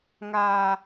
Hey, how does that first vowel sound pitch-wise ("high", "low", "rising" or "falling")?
low